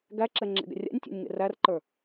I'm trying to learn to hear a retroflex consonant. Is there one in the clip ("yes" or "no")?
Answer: no